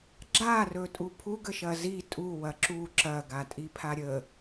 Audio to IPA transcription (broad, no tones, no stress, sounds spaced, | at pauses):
ɡ͡ǁ a r ɵ tʼ u pʰ u ɡ ə ʃ ɐ z i tʼ u w ɐ ǁ u ǁ ɐ ɡ a tʼ i pʰ a ɾʲ ə